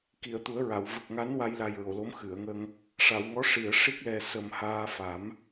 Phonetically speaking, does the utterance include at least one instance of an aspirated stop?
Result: no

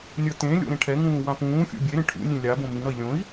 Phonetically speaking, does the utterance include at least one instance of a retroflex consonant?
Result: yes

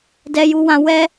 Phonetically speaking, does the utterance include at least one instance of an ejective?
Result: no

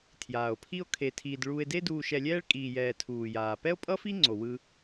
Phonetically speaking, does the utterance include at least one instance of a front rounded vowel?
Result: no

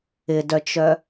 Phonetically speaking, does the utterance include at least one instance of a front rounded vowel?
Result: yes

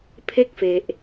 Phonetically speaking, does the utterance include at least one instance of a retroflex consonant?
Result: no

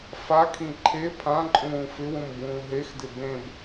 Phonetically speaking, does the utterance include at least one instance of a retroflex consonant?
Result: no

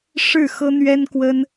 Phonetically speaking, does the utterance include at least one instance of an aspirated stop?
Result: no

